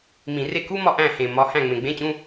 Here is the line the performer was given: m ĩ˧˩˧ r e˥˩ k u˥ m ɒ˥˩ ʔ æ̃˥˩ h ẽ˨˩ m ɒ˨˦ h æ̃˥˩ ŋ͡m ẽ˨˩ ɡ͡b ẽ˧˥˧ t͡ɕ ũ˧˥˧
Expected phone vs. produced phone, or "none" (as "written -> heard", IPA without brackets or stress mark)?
none